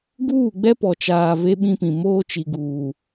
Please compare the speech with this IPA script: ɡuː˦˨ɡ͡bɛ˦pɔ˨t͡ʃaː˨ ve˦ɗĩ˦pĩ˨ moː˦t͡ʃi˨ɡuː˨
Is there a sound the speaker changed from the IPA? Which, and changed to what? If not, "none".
ɗ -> ɓ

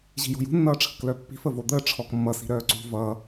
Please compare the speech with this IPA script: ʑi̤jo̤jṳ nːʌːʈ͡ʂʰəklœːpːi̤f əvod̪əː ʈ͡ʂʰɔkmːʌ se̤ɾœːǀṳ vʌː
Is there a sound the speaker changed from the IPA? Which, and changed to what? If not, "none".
e̤ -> i̤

